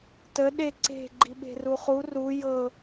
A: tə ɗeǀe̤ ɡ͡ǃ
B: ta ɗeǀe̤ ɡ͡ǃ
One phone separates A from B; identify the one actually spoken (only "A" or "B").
A